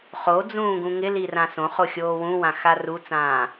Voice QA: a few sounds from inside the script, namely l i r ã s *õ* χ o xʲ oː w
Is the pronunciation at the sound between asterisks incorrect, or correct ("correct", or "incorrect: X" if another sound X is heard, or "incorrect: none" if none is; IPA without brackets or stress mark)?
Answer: correct